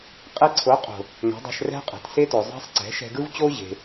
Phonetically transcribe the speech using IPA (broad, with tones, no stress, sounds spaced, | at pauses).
qʼ e˧ ǀʰ o˨˦ qʼ o̤˨ | ŋʷ e̤˨˦ dˤ æ̤˧ ʃ r ɛ̤˦ qʼ ɛ̤˨ t s e˦ t o˨ zˤ æ̤˦ sˤ ǀ ɛ̤˨˦ ʃ ɛ̤˧ ɡ ɯ˦ v t͡ɕ o˦ ʑ e̤˧